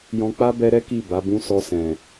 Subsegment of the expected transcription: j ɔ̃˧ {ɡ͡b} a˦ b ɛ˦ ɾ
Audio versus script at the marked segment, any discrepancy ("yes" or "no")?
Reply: yes